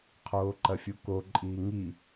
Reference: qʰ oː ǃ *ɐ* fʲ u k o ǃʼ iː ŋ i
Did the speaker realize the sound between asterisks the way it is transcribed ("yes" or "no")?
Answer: yes